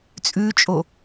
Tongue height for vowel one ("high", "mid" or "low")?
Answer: high